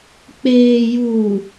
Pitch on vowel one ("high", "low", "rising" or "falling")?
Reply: low